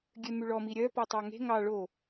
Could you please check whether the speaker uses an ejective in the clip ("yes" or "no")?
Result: no